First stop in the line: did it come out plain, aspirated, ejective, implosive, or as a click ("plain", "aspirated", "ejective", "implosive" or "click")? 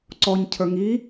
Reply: click